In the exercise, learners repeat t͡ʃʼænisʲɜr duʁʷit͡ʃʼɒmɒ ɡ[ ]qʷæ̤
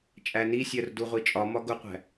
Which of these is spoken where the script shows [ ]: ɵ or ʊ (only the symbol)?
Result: ʊ